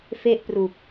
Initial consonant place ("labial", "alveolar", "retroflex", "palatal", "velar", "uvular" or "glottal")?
labial